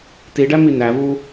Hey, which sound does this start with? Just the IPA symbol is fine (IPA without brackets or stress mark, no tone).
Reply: t